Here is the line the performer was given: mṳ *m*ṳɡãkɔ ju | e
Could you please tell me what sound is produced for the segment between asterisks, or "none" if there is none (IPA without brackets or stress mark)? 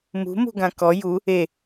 m